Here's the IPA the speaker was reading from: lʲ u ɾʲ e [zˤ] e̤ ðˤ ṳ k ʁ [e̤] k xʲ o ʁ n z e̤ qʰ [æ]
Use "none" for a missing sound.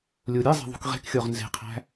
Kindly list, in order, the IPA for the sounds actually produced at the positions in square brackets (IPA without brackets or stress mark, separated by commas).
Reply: zˤ, e̤, æ̤